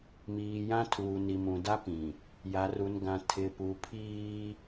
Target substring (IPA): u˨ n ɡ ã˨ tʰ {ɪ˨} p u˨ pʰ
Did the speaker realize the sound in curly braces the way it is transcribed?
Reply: yes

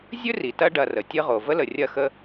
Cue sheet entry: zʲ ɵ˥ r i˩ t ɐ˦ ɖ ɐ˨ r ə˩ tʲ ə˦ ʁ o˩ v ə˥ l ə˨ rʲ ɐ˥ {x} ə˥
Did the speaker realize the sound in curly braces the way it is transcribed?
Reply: yes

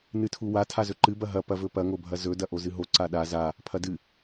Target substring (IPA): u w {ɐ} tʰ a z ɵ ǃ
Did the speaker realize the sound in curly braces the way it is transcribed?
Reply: no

